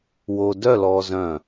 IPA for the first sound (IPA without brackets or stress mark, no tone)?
w